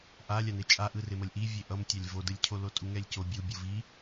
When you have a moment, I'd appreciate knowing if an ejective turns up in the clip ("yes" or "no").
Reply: yes